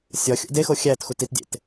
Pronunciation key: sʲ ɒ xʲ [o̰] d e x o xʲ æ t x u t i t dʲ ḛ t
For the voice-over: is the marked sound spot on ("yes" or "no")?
yes